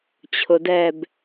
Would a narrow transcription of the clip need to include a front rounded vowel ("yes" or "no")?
no